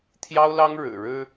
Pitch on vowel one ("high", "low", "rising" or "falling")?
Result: high